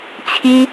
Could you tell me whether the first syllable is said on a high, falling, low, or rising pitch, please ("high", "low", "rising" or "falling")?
high